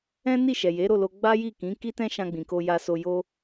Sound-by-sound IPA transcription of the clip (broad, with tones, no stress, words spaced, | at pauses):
ɛ̃˦ni˦˨ ʃɛ˨ je˨˦ ɾo˦˨lo˧ ɡ͡ba˦ji˦˨kĩ˨˦ ki˦tɛ̃˦ʃã˧ɡ͡bĩ˨ ko˧ja˧so˧ jo˦